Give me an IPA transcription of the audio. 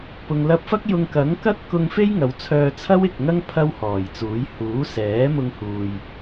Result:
p ʊ˨ ŋ l ɐ˧ p̚ f ɐ˥ k̚ j ʊ˧ ŋ k ɐ˨˥ ŋ k ɐ˥ t̚ k ʊ˧ ŋ f e˥ j ŋ ɐ˨˧ w t͡sʰ œː˧ t͡sʰ ɐ˥ w ɪ˨ k̚ ŋ ɐ˥ ŋ pʰ ɐ˥ w h ɔː˨˩ j t͡s uː˨˥ j h uː˨˥ s ɛː˨˥ m ʊ˧ ŋ h uː˧ j

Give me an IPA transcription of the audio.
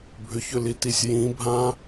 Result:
bʱ ʏ ç ʏ l i t i sʲ j ĩ bʱ ã

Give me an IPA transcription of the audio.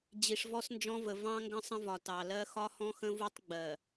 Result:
d͡ʑ i˨ ʂ v ɔ˦ s n d͡ʒ ɔ̃˦ v ə˨ v ɑ̃˦ ŋ ɡ ə̃˦ sˤ ə̃˦ v ɒ˨ t ɑ˨ l ɜ˦ x ɒ˦ h ɔ̃˦ x ə̃˦ v u˦ tˤ ɡ͡b ɜ˨

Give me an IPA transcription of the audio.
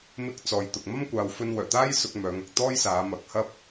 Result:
m ɪ˧ k̚ t͡s ɔː˨ j t̪ ʊ˨ k̚ m ɐ˥ m kʷ aː˨ w f ɵ˧ n w œː˨˩ t̪ aː˥ j s ʊ˧ k̚ m œː˨˧ ŋ ɐ˨ k̚ t̪ ɔː˥ j s aː˨˧ m ɐ˨˥ k̚ h ɐ˥ p̚

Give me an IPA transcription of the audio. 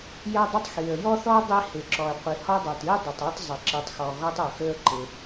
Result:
j ɛ˥ dˤ ɪ˥ tˤ x i˩ ə̯ j ɔ˥ θ ɔ˥ dˤ i˥ h ɪ˩ ǁ ɔ˩ ə̯ qʷ i˩ h ɔ˥ dˤ ɛ˩ t i˥ dˤ ɵ˩ tˤ ɔ˥ tˤ zˤ ɪ˩ ǁ i˩ tˤ x ɔ˩ ɣ ɔ˥ tˤ ɵ˩ x ɵ˥ ə̯ ǃ ɪ˩

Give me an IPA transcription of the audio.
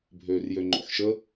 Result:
bʱ øː r j ø ŋ͡ǃ o̰ ħ ʃ ə

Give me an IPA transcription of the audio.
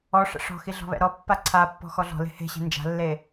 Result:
ɔ ʂ ɛ̰ ʂ ɔ̤ x i ɮ ɔ̤ β ɛ̰ ɾ ɔ pː a ǀʰ a pː ɔ̤ x ɔ ɮ ɔ̤ l e̤ h e̤ ɕ e̤ n d͡ʒ a̤ lː e

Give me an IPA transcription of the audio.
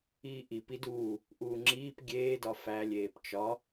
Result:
iː ʔ i p i d uː | ʔ uː ŋ͡ǁ iː p ɡʲ eː d ɒ f æ lʲ eː p t͡ʃ ɒ

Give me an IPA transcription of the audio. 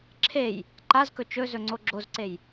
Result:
ǁʰ e j | ǃ a z k ɵ t͡ʃ ɵ z ɵ ŋ͡ǀ o ɡ͡ǁ o z ǀ e j

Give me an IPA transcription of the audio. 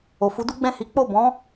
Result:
o˨ f u˨˦ d u˦ ɡ͡b ɛ̃˦˨ h i˨˦ k͡p o˦˨ b ɔ̃˨˦

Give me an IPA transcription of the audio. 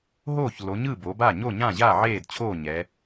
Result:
ɦ oː˥˩ ç l o˩˧ ɲ ɯ˥˩ b o˩˧ b a˥˩ ɲ o˥˩ ɲ ã˥˩ ʑ a˥˩ ʕ eː˥˩ d t͡ɕʰ oː˥˩ ɲ ɛ˩˧

